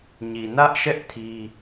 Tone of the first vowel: low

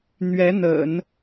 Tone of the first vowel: rising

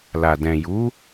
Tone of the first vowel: low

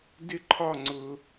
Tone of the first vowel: high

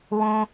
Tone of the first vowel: high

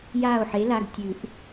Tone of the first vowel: falling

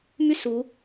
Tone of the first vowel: falling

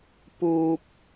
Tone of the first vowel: low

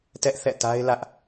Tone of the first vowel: high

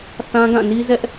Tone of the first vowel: high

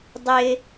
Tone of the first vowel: high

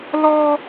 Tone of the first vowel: high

